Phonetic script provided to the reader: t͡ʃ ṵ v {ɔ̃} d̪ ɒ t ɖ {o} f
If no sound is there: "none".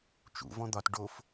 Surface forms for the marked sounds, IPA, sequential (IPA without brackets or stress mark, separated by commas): ɔ̃, o